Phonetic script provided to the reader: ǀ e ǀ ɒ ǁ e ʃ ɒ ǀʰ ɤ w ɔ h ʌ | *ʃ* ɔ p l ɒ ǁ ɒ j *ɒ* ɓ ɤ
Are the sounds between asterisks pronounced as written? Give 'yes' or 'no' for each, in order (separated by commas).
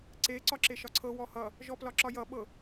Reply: no, no